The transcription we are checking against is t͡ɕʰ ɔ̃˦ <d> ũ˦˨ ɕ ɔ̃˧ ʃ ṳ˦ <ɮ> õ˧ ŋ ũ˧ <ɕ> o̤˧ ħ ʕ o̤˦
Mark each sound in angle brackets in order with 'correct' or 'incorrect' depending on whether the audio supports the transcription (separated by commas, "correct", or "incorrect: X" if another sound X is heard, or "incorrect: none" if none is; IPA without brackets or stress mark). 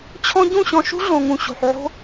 incorrect: ɟ, correct, correct